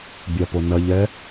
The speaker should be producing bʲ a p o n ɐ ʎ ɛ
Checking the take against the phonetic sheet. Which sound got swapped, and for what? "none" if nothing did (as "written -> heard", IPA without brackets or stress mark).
none